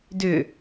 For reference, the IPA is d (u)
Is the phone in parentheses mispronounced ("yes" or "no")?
yes